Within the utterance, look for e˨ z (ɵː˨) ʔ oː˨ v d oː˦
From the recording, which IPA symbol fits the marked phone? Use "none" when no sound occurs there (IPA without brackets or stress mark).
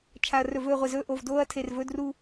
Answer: ɵː˦